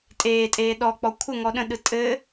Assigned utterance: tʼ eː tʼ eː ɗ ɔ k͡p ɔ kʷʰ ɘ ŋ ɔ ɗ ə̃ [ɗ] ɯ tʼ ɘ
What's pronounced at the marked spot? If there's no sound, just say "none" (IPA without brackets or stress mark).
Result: ɗ